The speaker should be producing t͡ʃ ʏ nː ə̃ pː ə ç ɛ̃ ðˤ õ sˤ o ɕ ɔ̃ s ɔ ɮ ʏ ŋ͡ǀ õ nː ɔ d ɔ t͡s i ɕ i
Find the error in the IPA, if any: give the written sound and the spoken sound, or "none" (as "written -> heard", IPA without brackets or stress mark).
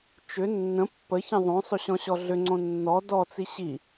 s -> ɕ